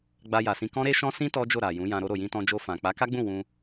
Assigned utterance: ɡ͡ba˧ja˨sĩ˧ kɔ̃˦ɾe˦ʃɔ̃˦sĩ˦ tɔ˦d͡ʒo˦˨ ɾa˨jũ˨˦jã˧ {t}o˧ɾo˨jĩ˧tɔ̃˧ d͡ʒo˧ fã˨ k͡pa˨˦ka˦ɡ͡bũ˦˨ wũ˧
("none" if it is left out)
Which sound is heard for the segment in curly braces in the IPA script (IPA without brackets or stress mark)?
ɾ